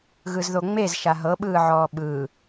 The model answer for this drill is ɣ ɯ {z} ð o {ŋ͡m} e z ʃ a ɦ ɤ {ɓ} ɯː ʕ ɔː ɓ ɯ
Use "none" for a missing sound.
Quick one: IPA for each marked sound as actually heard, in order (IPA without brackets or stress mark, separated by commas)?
z, ŋ͡m, ɓ